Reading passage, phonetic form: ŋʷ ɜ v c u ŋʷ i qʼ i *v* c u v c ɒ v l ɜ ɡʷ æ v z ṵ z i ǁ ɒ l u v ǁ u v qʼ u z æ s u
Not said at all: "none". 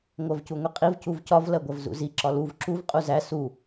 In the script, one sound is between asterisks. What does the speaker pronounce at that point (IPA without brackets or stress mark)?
v